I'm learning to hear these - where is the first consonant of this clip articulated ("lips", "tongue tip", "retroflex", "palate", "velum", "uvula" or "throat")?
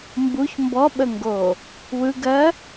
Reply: lips